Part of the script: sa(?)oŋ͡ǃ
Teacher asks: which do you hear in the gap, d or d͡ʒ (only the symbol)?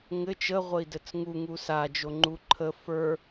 d͡ʒ